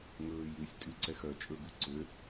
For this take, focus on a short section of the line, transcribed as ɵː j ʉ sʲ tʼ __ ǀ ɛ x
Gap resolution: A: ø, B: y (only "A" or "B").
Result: B